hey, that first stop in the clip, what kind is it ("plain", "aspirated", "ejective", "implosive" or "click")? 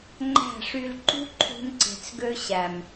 click